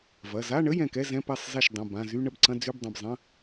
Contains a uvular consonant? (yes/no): no